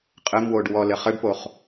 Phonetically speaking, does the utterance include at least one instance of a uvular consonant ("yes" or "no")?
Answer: yes